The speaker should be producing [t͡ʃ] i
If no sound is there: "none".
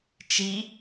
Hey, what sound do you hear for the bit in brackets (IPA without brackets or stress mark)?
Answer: t͡ʃ